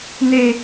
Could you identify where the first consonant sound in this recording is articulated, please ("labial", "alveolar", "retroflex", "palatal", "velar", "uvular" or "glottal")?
alveolar